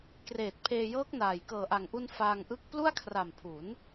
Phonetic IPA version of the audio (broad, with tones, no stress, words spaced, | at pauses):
kreː˨˩t̚pʰeː˧jɤː˦˥k̚naː˨˩j kɤː˨˩ʔa˨˩ŋʔu˧n faː˧ŋʔɯ˦˥k̚ plu˥˩a̯kʰra˨˩mpʰu˩˦n